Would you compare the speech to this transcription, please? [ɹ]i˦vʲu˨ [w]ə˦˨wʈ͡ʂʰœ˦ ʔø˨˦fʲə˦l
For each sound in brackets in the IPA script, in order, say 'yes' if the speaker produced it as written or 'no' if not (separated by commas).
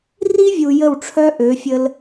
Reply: no, no